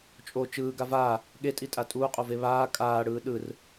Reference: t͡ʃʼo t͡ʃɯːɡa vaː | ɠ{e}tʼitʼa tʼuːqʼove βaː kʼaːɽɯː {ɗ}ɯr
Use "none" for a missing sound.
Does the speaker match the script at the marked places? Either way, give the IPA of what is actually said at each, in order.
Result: e, ɗ

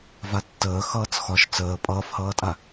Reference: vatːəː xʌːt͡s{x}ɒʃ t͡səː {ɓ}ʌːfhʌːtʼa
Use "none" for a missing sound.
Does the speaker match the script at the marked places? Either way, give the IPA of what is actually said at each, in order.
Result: x, pʼ

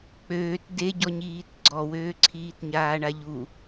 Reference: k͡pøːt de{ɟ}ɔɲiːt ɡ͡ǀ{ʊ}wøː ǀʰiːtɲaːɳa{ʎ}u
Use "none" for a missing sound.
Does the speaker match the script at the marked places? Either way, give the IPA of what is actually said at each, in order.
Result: ɟ, ɔ, ʎ

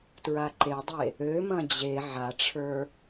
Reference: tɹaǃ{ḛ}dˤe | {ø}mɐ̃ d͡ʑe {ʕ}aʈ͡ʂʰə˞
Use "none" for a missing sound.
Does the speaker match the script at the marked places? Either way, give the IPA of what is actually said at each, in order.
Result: e, ø, ʕ

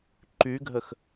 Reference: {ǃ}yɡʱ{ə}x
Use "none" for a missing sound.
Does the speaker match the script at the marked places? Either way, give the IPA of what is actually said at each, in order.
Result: ǃ, ə

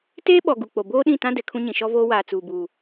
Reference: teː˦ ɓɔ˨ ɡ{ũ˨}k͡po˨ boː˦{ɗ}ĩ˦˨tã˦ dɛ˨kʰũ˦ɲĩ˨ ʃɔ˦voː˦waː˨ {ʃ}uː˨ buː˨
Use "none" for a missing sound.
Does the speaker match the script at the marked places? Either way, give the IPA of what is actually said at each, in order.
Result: u˨, ɗ, t͡s

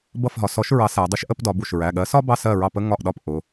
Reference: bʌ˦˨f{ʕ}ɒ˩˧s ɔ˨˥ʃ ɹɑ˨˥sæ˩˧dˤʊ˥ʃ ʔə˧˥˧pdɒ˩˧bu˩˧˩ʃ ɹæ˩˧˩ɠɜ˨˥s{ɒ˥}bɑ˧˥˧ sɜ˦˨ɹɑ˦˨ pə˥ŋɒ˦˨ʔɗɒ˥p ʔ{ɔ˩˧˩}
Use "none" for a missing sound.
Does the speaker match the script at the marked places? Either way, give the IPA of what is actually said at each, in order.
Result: ɦ, ɒ˥, ʊ˩˧˩

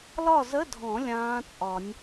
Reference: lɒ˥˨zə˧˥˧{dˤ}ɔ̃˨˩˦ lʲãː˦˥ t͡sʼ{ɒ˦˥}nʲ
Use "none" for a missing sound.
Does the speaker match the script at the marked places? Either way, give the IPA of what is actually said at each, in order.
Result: dʱ, ɒ˨˩˦

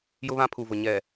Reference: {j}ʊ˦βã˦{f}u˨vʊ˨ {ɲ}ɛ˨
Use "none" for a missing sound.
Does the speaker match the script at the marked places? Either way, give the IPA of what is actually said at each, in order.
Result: j, pʰ, ɲ

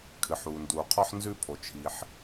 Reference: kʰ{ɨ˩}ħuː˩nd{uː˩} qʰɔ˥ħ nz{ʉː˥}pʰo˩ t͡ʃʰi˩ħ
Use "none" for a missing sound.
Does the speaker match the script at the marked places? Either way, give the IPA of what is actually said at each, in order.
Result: ɨ˩, uː˩, ʉː˥

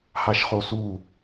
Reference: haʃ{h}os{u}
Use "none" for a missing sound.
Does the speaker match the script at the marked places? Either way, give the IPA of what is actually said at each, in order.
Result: χ, u

